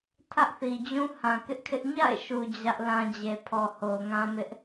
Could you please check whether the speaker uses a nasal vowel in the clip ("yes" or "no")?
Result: yes